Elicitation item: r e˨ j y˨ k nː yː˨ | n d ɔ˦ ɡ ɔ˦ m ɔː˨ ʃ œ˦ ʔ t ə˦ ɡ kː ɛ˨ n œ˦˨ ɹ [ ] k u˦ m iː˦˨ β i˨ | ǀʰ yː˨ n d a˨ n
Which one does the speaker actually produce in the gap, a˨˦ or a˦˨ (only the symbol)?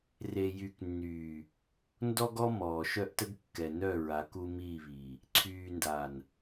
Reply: a˨˦